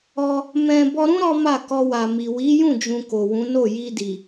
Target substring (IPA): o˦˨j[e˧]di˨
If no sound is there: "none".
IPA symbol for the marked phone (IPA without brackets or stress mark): i˧